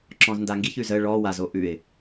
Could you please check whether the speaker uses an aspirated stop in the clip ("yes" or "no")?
no